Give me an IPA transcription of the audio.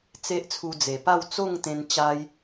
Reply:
t͡se˦ʔt͡sʰu˧d͡ze˨˩pa˥˧w t͡so˥˧ŋt̪ẽ˧n t͡ɕa˦j

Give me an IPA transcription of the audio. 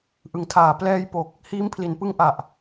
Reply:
ʔɯ˨˩ŋtʰaː˨˩ plɛː˧jpo˨˩k̚ | hiː˦˥mpʰli˩˦n pɯ˦˥ŋʔa˨˩ʔ

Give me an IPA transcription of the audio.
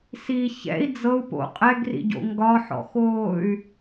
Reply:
si çɛ̰i̯ d͡zɤu̯ po̰ qʼɛɡrḭɟo̰ ŋɡɒħɔ̰xoːy̯

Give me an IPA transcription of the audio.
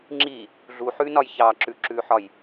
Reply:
ŋ͡ǁi | ɮuħʉnɒj çɑǁʉǁʉħɒj

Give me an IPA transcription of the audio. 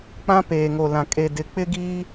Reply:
k͡pã˦peː˨ŋo˨lã˨ kʼe˨dɪ˨ k͡pɪ˦ɡiː˦

